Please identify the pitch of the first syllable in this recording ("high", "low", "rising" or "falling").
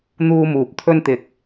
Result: high